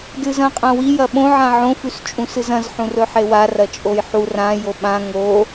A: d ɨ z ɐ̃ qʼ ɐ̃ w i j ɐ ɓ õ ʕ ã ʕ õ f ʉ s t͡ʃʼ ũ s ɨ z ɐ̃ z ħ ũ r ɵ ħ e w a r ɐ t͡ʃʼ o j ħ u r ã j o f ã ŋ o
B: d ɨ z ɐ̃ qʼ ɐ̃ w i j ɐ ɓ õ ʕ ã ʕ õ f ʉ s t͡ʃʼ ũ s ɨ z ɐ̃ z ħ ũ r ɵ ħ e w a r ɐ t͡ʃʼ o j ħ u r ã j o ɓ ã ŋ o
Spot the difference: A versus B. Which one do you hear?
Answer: B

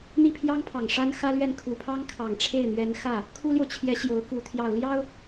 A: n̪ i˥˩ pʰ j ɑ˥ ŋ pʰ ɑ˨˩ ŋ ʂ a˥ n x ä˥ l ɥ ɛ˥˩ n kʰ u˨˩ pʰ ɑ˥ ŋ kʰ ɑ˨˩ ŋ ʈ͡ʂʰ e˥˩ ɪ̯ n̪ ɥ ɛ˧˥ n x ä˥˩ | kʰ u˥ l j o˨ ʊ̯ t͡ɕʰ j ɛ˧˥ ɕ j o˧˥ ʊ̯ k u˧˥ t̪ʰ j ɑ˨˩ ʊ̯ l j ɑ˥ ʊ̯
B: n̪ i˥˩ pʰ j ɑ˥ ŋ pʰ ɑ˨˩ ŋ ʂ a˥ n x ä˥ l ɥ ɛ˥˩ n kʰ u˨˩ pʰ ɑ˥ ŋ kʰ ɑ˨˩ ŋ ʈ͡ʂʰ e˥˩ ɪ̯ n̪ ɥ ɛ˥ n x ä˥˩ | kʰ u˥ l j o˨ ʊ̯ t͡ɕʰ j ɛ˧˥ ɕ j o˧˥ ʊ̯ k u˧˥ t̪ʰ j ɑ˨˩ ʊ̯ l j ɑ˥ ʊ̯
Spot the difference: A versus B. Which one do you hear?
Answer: A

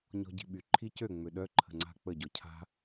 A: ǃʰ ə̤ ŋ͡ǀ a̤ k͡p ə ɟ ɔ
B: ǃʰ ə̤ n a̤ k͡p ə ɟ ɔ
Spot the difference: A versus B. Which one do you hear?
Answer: A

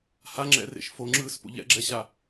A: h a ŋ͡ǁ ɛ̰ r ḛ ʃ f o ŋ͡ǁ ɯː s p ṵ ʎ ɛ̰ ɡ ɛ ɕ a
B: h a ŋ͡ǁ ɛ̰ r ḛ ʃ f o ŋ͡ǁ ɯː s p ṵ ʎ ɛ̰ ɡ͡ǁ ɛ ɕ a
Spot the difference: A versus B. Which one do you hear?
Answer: B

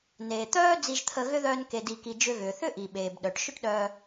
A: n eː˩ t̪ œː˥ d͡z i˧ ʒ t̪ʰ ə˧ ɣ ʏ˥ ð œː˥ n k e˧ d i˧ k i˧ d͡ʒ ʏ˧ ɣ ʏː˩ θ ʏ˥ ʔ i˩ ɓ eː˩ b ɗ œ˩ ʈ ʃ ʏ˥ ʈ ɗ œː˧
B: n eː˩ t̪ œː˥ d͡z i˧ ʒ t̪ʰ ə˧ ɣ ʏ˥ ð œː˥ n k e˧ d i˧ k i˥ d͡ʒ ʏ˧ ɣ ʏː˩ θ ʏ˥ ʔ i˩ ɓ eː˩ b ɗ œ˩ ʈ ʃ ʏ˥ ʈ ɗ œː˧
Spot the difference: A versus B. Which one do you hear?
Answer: A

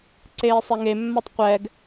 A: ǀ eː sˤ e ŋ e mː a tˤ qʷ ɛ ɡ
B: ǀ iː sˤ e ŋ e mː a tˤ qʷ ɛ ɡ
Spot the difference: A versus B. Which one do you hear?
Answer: A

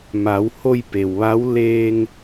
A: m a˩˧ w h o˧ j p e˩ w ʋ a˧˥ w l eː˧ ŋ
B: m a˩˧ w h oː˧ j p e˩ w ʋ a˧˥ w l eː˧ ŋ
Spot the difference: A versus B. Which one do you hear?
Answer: A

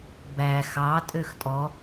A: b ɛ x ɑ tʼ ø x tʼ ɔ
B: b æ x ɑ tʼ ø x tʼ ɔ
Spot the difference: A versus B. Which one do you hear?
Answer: B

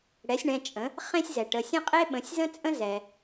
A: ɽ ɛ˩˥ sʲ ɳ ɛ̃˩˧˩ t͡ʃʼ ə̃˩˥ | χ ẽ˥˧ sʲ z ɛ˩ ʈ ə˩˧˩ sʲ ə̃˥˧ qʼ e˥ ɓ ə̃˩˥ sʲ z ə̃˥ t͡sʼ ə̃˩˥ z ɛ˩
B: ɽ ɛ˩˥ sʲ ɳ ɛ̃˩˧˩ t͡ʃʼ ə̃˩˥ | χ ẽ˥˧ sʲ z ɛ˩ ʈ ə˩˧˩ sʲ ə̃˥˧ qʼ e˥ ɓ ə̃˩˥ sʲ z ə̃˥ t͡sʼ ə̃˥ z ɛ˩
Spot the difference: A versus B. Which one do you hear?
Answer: B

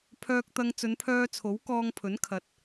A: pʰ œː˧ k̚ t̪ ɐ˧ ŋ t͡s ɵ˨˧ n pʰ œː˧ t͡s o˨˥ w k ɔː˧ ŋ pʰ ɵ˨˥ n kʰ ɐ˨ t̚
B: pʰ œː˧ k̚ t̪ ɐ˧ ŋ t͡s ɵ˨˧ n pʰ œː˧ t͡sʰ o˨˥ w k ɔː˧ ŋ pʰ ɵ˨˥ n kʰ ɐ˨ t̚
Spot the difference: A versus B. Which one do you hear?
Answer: B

